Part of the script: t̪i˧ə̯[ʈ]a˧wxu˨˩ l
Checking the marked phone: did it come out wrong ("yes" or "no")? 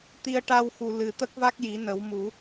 no